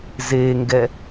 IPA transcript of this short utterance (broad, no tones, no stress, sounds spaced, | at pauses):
z e ŋ ɡ ɛ